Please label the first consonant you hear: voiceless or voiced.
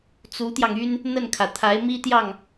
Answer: voiceless